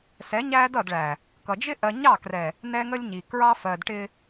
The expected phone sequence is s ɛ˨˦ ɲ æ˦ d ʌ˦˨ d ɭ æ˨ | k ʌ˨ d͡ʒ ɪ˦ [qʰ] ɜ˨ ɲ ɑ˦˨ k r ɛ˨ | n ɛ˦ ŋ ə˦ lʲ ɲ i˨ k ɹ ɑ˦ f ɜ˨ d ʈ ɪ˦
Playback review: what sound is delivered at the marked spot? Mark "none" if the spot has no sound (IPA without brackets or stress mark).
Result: ʔ